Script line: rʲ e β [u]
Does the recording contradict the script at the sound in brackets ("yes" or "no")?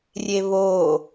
yes